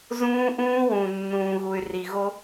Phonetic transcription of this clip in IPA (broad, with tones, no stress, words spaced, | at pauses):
zũː˦ʔũː˦wũ˨ nːũː˨ɣu˨y̯ ri˨ɣo˦